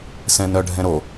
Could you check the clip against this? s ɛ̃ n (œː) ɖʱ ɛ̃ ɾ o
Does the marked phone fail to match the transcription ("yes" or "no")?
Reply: yes